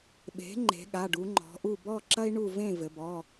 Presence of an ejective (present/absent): absent